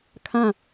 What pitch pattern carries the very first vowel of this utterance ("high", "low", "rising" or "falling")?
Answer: falling